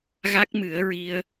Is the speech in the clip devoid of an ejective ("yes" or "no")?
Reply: yes